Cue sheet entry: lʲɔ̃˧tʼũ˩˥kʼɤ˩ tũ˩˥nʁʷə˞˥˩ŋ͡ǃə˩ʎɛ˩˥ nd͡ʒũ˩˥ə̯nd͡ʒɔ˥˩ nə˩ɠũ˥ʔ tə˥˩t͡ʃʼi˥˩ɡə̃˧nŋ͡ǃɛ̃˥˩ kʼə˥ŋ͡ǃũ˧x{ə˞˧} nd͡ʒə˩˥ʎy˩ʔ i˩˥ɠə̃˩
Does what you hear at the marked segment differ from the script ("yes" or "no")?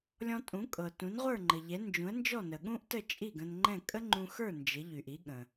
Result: yes